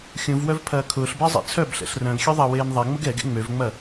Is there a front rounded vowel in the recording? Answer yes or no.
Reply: yes